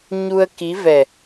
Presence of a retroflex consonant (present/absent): absent